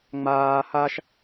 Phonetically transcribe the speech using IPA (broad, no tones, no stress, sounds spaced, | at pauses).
ŋ͡m aː h a ʃ